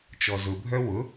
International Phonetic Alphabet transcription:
t͡ʃ ɔ z ʊ bʱ œ w ʊ

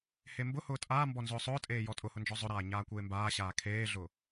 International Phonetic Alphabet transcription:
h e m b ʊ h ʊː tʼ aː m b ɔ n z ʊː sˤ ʊː tʼ eː j ɔ tʼ ʊ h ʊ n d͡ʒ ɔ zˤ ʊ ɾ aː ɲ aː kʷ eː m b aː ɕ aː kʰ eː ɮ ʊ

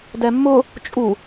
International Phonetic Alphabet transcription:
d ɛ mː ʊ | t͡ʃʼ u

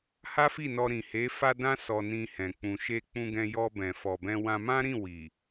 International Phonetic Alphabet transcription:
h a˦ f i˦˨ n ɔ˧ ɾ ĩ˨ h e˨˦ f a˧ d ã˧ s ɔ˧ n ĩ˧ h ɛ̃˨ k͡p ũ˨ ʃ e˧ k͡p ũ˧ ɡ ɛ̃˧ j ɔ˧ b ɛ̃˨ f ɔ˨ b ɛ̃˧ w ã˧ m ã˦ ɾ ĩ˦˨ w i˨

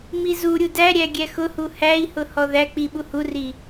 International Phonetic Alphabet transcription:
m i z u ɾʲ u d æ ɾʲ æ ɡʲ æ x ʊ h u h æ i̯ h ʊ h ɔ ð æ k͡p i ɓ u h u r i

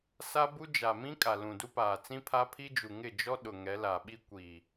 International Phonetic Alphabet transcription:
s a˦ b u˦ d͡ʒ a˨ m ĩ˦ kʼ a˨ l ũ˨ d u˦ p aː˨ t͡s ĩ˦ pʰ a˦ pʰ i˦ d͡ʒ u˨ ŋ ɪ˦˨ d͡ʒ ɔ˦ ɗ ʊ˨ ŋ ɛ˨˦ l a˨ ɓ i˦ kʷ i˨

